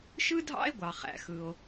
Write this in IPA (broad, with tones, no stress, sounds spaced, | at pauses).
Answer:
ʃ ɯ˥ dʱ ɑ̰˥ e̯ ɡʷ ɑ˧ χ æ̰˧ x ɯ˧ o̯